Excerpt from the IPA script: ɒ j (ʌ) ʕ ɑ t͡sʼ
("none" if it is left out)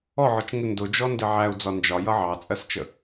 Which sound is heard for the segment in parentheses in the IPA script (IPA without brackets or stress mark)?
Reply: ʌ